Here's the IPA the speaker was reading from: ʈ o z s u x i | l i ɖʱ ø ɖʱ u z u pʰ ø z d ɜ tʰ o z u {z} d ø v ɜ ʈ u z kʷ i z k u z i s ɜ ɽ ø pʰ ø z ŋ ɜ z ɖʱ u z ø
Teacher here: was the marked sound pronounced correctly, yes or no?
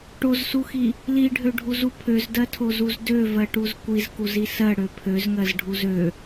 yes